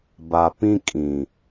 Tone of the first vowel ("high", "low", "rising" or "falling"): low